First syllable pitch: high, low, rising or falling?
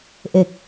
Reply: low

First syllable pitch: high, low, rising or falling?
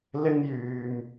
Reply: high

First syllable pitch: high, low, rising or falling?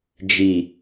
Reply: low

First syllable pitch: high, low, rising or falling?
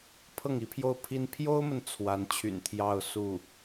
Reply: falling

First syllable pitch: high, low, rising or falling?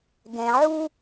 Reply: low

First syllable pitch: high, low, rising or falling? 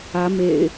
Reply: rising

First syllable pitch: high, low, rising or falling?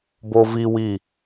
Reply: high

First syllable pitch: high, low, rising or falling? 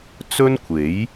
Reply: high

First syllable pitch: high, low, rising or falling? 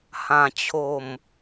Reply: low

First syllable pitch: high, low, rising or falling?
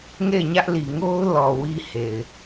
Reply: falling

